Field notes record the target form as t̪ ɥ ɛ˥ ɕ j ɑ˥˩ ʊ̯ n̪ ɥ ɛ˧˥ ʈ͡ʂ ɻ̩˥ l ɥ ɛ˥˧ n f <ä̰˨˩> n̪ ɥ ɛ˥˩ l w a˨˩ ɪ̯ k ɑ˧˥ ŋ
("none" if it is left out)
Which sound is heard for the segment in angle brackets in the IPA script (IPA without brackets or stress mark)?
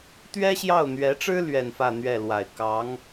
ä˥˧